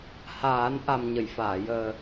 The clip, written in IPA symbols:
h aː˨˩˦ n ʔ a˨˩ m ɲ ə˨˩˨ j f aː˨˩˨ j əː˨˩

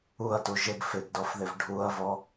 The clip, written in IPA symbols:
u ɐ̯ t u ʒ ɪ ɡ f ɪ ɡ d ɔ f ð ɪ v ɖʱ u ɐ̯ v ɔ

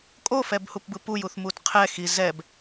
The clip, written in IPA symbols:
kʼ o f ɛ b h u p b ɯ p u j u θ m u t qʰ ɛ x i z ɛ b

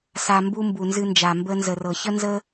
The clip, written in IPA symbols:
s a˨ m b u˧ m b u˨ n z ɨ˧ n d͡ʒ a˨ m b ə˧ n z ə˨ r ɤ˨ ç ə˦ n z ə˦

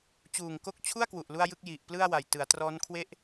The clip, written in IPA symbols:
t͡ɕ uː˨˩ ŋ k o˦˥ k̚ t͡ɕʰ u˥˩ a̯ k w u˨˩ ʔ l u˥˩ a̯ j ɯ˥˩ k̚ j i˨˩ ʔ p l ɯ˥˩ a̯ w a˨˩ j t ɯ˩˦ a̯ t r ɔː˦˥ n kʰ w e˥˩ ʔ

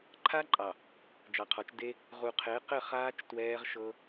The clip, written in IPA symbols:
ǃʰ a˦ ǃʼ ɑ˨ | d͡ʒ ɑ˨ qʰ ɔ˨˦ t͡ʃ d e˦ | ʁ u˨ qʰ e˨˦ q ɘ˦˨ χ aː˦ t͡ʃ t w ɛː˦ ʁ ʃ ɤ˦

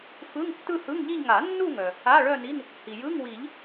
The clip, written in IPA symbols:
f ɯ˧˥˧ ŋ tː ɯ˥˧ h ɯ˧˥˧ ŋ ʎ i˥˧ ʎ ŋ a˨˩˦ nː u˥˧ ŋ œ˩ | a˧˥˧ ɭ œ˥˧ n i˧˥˧ n | h i˩ j ɯ˧˥˧ ŋ w i˨˩˦ ʎ

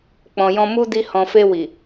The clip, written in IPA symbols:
k͡p ɔ̃˨ j ɔ̃˧ m u˦ d i˧ h ɔ̃˨ f e˧ w i˨

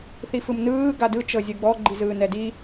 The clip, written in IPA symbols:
θ i f ɯ m n ɯː ɡ a d ɯ t͡ʃ ɤ zʲ ɯ ɡ͡b ɔ ɡ͡ǃ i z ɯː n ɛ d i

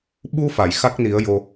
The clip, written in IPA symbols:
ɓ u˧ f a˨˩˨ j x a˦˥ k̚ n i˨˩˦ ə̯ j o˧

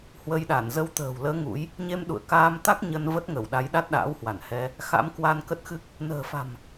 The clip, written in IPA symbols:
h w ə˧ j ɗ a˧˩ n z ə˨˦ w t̪ ə̤ː˨˩ w l əː˨˦ ŋ ṵ˧˥ j | ɲ e˧ m ɗ ṵ˧˨ ə̯ k aː˧ m t̪ a˦˥ k̚ ɲ ə˧ n v ə˦˥ t̚ ŋ ə˧˩ w ɗ a˨˦ j ɗ a˦˥ t̚ ɗ a̰ː˧˥ w h w a˧˩ n h ɛ˧ | x a̰˧˥ m k w a˧ n k ə˦˥ t̚ x ɨ˦˥ k̚ | n ə̤ː˨˩ f a̤˨˩ m

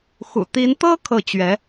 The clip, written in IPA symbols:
x ṵ˨˩ t̪ i˧˥ n t̪ ɤ˥ kʰ ɤ˥˩ t͡ɕ ɥ ɛ˧˥

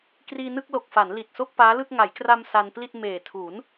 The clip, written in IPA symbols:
k r iː˧ n ɯ˥˩ k̚ l o˨˩ k̚ f a˩˦ n l i˨˩ t̚ s o˥˩ k̚ p aː˦˥ l ɯ˥˩ k̚ ŋ a˩˦ j k r a˧ m s a˧ n p l i˥˩ t̚ m eː˨˩ tʰ u˩˦ n

